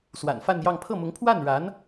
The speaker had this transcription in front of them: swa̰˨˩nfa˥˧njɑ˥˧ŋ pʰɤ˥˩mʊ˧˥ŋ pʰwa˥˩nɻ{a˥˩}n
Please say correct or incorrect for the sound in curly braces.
incorrect